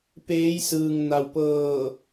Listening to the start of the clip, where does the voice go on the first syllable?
rising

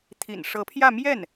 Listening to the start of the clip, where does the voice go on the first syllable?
low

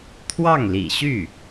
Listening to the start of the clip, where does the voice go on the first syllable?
falling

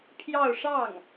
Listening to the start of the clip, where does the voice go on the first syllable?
falling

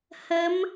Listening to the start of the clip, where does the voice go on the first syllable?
rising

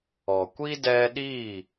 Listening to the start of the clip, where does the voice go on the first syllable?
low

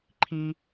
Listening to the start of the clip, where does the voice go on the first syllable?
high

